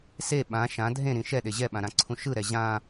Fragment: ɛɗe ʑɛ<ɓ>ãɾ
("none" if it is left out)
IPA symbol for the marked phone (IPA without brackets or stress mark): ɓ